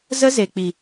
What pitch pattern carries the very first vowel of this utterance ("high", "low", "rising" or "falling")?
high